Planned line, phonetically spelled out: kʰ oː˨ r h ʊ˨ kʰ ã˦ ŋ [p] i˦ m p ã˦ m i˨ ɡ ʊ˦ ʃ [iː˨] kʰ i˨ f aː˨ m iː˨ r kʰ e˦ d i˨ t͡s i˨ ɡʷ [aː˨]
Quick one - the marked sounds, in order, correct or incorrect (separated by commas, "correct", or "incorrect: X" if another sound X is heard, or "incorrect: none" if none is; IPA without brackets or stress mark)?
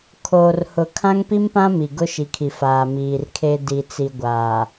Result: correct, incorrect: i˨, correct